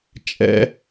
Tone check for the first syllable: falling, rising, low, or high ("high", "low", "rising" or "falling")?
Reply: high